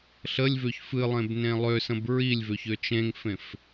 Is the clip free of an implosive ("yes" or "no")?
yes